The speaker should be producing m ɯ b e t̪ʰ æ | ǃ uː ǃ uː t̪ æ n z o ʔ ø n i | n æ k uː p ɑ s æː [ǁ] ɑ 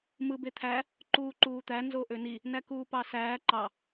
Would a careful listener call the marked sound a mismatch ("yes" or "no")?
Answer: yes